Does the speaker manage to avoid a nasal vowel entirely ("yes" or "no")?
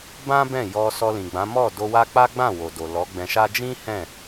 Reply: no